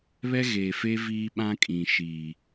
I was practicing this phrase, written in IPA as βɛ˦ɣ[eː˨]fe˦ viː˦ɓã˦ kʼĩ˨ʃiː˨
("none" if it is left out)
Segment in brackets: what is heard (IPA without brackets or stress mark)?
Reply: eː˨